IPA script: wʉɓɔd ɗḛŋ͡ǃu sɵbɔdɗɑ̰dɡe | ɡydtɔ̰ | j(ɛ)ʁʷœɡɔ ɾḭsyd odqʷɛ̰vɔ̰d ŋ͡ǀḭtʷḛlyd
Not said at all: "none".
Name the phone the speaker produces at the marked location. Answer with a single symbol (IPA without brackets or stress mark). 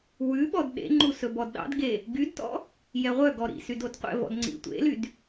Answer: ɛ